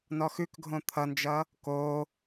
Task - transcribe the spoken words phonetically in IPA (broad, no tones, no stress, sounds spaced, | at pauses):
n ɔ x ʉ k ɡʱ õ t̪ʰ ʌ n d͡ʒ ʌ | k o